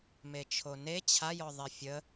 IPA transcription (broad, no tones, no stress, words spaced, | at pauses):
met͡ʃʰone t͡ɕʰajɔðˤe fʲə